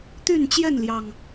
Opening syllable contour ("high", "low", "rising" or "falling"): falling